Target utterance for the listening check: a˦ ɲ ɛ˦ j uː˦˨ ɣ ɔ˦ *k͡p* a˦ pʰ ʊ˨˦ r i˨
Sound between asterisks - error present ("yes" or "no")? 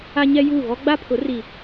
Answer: yes